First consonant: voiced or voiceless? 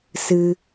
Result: voiceless